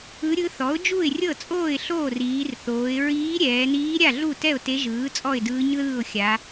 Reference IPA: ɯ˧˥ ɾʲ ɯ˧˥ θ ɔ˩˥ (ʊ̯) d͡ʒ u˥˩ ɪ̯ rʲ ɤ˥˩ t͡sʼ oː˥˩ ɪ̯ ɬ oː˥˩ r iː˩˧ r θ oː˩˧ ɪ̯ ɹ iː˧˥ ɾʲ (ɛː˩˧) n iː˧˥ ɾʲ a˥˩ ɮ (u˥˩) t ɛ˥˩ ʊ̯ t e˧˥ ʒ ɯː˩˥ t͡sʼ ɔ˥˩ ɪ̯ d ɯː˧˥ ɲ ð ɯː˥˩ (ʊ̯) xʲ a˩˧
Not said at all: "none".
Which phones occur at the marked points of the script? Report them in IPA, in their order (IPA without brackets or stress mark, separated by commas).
ʊ̯, ɛː˩˧, u˥˩, ʊ̯